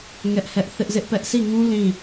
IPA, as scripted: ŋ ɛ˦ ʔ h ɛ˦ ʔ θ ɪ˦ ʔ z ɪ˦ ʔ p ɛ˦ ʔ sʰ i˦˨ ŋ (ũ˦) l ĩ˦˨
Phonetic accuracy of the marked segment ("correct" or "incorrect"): correct